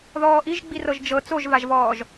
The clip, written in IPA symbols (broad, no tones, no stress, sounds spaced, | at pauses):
ð ɔː ʔ i ʒ ɡ͡b i r ɤ ʒ d͡ʒ ɤ t͡s o ʒ v a ʒ v ɔː ʒ